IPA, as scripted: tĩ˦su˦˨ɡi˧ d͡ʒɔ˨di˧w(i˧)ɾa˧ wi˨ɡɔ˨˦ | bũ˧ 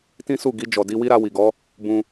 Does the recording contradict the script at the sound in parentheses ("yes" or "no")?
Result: yes